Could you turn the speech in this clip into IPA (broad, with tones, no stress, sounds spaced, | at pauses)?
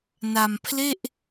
n a˧ m pʰ l e˥˩ ʔ